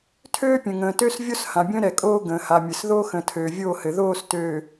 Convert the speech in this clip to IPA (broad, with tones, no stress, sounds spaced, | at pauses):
tʰ øː˦ pʲ ə̃˨ ŋ ə̃ː˨ t ø˦ s vʲ o˦ s h ã˨ bʲ ə̃ː˦ ɾ ɛ˨ kʼ oː˦ ɡ ə̃ː˨ h a˨ mʲ ɘ˨ s ð o˦ x ə̃˨ tʰ øː˨ vʲ oː˦˨ h ɘ˨ ð oː˦˨ s t øː˨